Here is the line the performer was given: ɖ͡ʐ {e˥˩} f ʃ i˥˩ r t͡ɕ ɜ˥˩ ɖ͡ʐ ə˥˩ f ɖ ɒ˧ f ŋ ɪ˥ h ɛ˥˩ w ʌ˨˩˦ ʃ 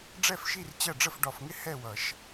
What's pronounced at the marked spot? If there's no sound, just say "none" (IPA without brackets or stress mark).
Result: ɛ˥˩